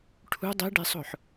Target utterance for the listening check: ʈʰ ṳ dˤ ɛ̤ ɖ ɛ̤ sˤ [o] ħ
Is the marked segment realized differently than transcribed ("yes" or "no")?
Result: yes